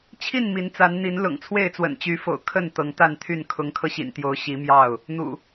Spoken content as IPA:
t͡ɕʰi˥˨n mi˨˦nt͡sa˨˦n n̪i˨˦n lʊ̰˨˩ŋt͡sʰwe˥˨ɪ̯t͡swə̰˨˩n t͡ɕy˨˦fo̰˨˩ʊ̯ kʰə˥˨n t̪ɤ˨˦ŋt̪a˥˨nt̪ʰy˥˨n kʰʊ˨˦ŋkʰɤ˧ɕḭ˨˩nt̪jo˨˦ʊ̯ ɕi˨˦mjɑ˥˨ʊ̯ | n̪ṵ˨˩

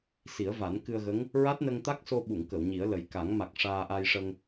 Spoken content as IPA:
si˨˩˦ə̯va˨˩˦nkɨ˧ə̯ɣə˧˥ŋ | ɹa˦˥t̚nə˧ŋt̪a˦˥k̚so˧ ɓu˨˩˨ŋkə˨˩˨w ɲi˨˩˦ə̯lə˨˩j ka˨˩˦ŋ ma˨˩k̚ ʂaː˧ʔa˧jʂə˧ŋ

